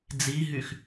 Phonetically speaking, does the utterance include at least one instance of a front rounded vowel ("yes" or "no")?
yes